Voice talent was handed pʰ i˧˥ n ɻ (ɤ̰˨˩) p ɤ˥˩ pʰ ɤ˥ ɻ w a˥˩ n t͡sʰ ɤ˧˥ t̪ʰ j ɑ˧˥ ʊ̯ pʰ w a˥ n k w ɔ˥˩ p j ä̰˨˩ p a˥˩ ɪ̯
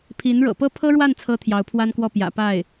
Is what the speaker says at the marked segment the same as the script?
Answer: yes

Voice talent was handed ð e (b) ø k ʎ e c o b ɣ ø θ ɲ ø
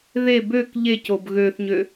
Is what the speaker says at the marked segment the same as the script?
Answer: yes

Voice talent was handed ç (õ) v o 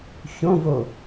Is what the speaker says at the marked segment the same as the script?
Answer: yes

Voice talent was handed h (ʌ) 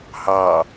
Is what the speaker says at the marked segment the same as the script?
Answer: no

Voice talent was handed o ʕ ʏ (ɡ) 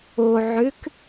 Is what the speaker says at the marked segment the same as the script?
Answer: no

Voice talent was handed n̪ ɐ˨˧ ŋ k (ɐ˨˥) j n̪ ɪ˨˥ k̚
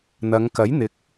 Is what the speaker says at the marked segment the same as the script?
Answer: yes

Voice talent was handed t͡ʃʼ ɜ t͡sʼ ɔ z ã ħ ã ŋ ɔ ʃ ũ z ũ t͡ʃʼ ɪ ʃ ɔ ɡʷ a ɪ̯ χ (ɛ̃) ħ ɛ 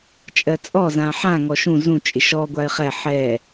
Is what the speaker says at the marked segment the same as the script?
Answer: no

